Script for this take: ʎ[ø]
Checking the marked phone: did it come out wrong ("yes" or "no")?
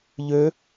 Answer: no